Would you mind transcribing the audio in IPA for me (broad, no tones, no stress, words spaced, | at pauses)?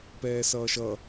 pɛːsʌːʃʌ